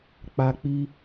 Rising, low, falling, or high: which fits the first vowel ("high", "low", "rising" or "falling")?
high